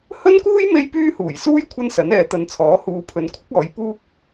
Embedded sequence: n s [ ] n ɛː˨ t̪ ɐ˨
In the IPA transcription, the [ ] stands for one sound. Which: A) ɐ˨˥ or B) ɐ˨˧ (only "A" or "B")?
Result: A